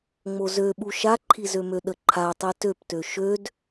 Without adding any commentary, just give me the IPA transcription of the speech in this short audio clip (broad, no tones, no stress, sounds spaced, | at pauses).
ŋ͡m o z ø ɓ u ʃ a ǃʰ i z ø m ø ɗ ə ǃʰ a tˤ i t ø p t ø ʃ ø d